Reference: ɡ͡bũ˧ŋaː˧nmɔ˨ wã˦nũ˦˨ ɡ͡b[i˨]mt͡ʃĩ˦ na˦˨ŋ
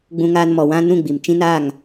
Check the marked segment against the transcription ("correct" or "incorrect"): correct